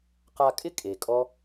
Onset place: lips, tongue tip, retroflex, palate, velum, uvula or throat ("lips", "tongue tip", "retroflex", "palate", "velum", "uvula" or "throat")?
uvula